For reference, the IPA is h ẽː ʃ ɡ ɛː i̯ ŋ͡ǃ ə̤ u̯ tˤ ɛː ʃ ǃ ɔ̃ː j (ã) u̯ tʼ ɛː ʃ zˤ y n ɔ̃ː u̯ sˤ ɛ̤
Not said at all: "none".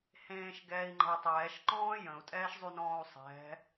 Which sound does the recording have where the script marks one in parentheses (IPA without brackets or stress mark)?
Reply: ə̃